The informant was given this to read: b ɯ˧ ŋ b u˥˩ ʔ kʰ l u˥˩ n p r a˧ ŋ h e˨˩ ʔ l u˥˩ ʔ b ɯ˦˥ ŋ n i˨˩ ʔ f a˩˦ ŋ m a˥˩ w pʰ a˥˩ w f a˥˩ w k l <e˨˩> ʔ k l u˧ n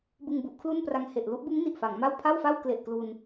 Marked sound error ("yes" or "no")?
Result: no